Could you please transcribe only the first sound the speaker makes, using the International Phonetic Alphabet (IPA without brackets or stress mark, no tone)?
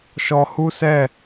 ʃ